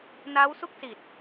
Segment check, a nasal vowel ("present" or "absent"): absent